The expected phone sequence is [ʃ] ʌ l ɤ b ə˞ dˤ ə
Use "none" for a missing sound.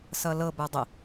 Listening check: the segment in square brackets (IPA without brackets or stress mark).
s